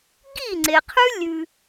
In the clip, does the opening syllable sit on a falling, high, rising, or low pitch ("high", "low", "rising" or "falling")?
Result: falling